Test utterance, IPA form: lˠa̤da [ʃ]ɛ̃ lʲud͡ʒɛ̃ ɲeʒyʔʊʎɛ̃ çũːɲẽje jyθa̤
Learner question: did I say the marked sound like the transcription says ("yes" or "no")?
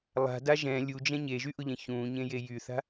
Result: no